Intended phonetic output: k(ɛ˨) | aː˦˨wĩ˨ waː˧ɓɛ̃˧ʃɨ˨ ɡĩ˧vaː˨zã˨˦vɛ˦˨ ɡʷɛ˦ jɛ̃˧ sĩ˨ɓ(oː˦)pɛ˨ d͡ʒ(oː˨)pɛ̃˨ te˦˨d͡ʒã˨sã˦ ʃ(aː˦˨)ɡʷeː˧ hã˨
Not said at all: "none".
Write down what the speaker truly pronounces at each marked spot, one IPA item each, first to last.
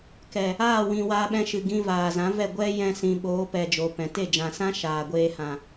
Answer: ɛ˨, oː˨˦, oː˨, aː˨

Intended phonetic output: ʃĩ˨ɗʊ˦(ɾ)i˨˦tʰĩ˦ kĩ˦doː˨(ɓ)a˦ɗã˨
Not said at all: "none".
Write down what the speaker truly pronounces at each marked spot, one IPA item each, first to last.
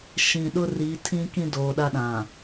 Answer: r, ɗ

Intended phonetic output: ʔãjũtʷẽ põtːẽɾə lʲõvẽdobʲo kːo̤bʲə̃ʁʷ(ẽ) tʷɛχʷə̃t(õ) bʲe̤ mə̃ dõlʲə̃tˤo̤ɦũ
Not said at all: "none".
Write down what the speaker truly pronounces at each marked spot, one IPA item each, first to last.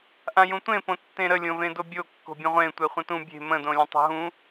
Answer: ẽ, ũ

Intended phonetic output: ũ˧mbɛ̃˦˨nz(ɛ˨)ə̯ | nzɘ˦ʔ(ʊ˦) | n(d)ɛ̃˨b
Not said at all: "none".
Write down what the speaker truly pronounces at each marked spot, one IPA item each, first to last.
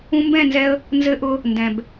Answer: ɛ˧, ʊ˦, d

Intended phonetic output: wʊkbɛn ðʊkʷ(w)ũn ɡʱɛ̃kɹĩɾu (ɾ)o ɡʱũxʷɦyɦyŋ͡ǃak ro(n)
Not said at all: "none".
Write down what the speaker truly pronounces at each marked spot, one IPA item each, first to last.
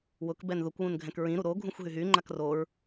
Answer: w, ɾ, ɹ

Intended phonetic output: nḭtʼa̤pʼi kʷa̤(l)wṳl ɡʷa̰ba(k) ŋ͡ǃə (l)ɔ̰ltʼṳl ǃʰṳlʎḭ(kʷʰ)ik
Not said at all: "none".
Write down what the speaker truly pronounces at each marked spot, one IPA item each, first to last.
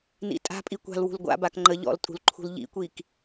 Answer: l, k, ʎ, kʷ

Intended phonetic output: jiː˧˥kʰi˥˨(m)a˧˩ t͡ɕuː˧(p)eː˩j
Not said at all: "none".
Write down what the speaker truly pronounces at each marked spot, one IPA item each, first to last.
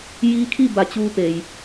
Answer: b, p

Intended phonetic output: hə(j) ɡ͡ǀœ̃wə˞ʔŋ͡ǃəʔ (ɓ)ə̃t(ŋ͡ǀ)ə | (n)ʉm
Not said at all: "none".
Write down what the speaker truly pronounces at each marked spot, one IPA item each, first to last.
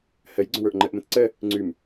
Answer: j, m, ǀ, ŋ͡ǀ

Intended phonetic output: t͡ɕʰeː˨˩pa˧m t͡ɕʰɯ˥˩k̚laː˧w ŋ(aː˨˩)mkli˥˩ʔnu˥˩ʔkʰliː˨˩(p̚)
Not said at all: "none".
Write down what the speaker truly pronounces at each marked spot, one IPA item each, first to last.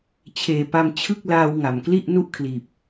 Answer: a˨˩, p̚

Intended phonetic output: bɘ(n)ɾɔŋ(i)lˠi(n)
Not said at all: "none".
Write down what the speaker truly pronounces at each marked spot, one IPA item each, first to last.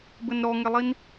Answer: n, e, n

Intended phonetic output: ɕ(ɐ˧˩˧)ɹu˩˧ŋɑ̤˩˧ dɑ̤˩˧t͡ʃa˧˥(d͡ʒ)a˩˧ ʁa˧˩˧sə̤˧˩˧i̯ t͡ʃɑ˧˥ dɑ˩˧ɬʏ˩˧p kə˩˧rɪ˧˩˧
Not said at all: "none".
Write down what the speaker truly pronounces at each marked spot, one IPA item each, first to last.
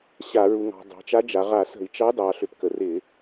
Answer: a˧˩˧, d͡ʒ

